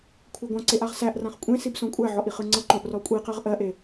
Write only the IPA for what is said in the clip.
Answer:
kʷʰ ɤ ɡʷ ã ǀ e ʔ a ʁ s æ ʔ r ã χ kʷʼ ẽ s i b s õ kʷʼ æ ʕ ɔ ʔ i χ ɯ ŋ͡ǀ ɤ ǃ õ ʔ r ɔ kʷʼ i q ɜ ʁ ʔ ɜ ʔ e

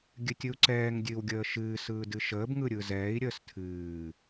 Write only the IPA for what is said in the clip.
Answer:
ɡʲ ɨ tʲ ɯ u̯ ǀ ɛː ŋ dʲ ɨː w ɡʲ əː ʃ ɨː s ɯː d ɨ ʃ əː b ŋ ɯ ɾʲ ɯ z ɛː i̯ ɾʲ əː s tʰ ɨː

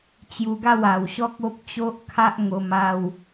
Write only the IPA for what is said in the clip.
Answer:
t͡ɕ j u˧ ɡ a˥˧ w a˨˩ w ɕ ɔ˦ k̚ o˦ p̚ t͡ɕ o˦ ʔ kʰ a˦ ʔ ŋ o˧ m a˥˧ w

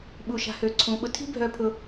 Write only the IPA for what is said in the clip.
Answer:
ɓ u˧ ʃ a̤˧ h ø˧ ǀʰ ũ˧ ɓ ʊ˧ tʰ i̤˦ bʱ œ˧ pʰ ʊ˧

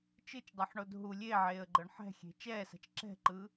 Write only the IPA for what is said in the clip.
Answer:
t͡ʃ ɯ t͡ʃ dˤ ɤ ħ ɳ o d ɦ u lʲ e ʕ eː ə̯ ɡ͡ǃ ɤ ɳ ħ ɛ̤ xʲ e̤ t͡ʃ ɛː s a̤ t͡ʃ ǁ ɛ̤ ǃ ɯ

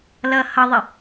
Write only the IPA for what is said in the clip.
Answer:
l ʌ h ʌ ðˤ ɪ

